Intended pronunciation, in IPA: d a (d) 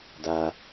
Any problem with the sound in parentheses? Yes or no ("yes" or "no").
yes